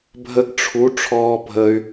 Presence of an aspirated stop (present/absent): present